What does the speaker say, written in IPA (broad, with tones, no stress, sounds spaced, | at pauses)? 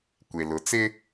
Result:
kʷ e˨ l ʊ˨˦ t͡s ɪ˦